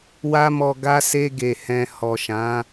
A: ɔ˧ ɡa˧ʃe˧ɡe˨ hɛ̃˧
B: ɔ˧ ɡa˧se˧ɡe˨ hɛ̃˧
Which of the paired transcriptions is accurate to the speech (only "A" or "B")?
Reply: B